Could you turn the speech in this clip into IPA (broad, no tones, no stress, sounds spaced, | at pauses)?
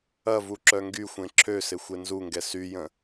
ɐ v u ǁ œ ŋ ɡ y xʷ ẽ ǁʰ ø s ɪ xʷ e n z u ŋ ɡ ɛ s y j ə̃